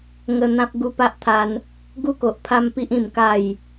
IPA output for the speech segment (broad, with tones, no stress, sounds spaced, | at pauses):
ŋ ə˧ n̪ ã˦ p̚ ɡ u˧ p a˦ ʔ t̪ʰ a˧ n | ɡ u˦ k o˨ ʔ pʰ a˦ m p i˦ ʔ ĩ˧ m k a˥˧ j